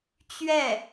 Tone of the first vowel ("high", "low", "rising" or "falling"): falling